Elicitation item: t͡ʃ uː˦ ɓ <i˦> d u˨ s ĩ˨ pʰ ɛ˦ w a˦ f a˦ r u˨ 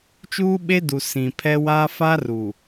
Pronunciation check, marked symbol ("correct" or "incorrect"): incorrect